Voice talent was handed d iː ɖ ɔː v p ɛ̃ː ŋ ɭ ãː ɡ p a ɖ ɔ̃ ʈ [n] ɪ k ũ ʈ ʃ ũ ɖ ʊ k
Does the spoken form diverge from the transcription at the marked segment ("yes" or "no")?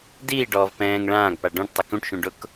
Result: yes